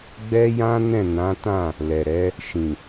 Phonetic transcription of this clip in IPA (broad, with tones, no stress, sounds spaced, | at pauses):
ɡ͡b ɛ˦ j ã˦ n ɛ̃˦˨ n ã˨˦ t ã˦˨ | l ɛ˨ ɾ ɛ˨˦ | ʃ ĩ˨